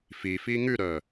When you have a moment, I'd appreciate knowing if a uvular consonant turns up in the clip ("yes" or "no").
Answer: no